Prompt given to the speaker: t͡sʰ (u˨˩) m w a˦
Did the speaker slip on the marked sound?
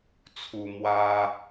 yes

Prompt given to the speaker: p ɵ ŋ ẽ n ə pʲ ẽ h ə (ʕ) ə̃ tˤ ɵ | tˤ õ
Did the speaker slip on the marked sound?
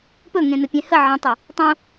no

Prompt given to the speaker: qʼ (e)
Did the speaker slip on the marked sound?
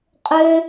yes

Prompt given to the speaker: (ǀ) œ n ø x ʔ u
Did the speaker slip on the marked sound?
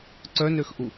no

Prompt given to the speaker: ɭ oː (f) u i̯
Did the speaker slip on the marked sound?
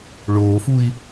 no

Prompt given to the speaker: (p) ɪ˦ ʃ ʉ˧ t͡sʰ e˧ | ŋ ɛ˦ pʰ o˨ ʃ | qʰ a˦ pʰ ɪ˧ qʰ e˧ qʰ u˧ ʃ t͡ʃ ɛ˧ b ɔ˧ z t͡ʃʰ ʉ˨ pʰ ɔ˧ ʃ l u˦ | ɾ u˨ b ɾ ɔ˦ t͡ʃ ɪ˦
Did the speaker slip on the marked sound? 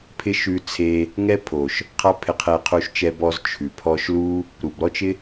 yes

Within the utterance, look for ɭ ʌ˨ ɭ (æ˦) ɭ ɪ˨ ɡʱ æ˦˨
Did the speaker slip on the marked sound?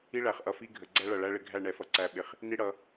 no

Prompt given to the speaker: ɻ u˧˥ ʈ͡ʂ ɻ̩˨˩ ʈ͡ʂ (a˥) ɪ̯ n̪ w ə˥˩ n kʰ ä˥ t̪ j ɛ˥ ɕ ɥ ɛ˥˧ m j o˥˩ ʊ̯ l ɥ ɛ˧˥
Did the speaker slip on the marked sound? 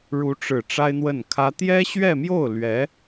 no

